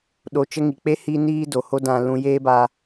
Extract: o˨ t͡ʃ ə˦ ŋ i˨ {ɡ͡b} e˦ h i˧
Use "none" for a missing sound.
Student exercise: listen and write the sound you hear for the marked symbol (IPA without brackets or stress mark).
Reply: k͡p